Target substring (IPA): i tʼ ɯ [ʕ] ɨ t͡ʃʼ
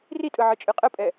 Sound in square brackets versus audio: correct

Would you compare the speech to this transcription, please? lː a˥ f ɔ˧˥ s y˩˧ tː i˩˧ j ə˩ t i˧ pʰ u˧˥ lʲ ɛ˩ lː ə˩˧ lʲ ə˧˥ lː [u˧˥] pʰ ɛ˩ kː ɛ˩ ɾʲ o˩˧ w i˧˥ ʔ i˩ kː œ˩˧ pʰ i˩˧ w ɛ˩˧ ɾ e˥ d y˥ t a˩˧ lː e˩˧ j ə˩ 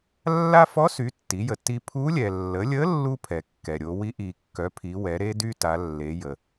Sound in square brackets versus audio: incorrect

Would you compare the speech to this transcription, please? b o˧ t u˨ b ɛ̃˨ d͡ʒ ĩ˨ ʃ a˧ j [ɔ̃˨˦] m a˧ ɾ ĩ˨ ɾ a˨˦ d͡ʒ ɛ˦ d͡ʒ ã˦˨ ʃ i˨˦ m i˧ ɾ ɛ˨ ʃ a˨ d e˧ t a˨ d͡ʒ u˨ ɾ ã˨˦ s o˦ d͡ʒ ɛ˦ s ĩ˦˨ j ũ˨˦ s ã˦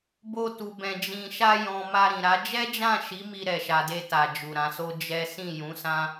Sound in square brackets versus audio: incorrect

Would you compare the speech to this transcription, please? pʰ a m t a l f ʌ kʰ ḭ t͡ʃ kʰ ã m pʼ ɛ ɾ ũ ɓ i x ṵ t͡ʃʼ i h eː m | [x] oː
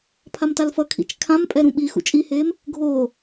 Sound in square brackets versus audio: incorrect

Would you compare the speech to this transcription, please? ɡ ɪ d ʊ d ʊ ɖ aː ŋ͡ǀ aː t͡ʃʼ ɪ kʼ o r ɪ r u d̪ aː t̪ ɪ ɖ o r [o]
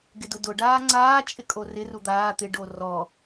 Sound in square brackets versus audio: incorrect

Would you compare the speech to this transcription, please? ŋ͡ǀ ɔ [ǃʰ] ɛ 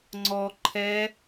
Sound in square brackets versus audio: correct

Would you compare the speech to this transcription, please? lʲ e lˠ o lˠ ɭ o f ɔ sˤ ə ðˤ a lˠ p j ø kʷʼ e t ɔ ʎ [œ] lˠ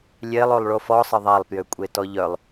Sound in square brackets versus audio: correct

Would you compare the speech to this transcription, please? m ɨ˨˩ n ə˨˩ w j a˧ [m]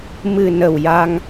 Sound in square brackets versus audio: incorrect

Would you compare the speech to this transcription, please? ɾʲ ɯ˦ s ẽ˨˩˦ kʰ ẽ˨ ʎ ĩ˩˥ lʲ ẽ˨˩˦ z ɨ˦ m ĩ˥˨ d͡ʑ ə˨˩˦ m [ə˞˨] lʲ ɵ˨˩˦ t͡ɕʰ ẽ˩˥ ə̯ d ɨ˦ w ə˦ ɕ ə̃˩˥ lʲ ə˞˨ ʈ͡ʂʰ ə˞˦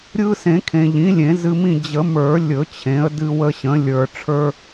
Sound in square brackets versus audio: incorrect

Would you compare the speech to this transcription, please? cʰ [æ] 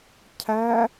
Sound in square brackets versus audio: correct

